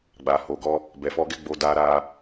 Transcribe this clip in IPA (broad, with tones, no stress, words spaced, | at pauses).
ɡ͡ba˨ho˨ɡɔ˧ | bɛ˨fɔ˧ɡɛ˦ ɡ͡bo˧da˧ɾa˧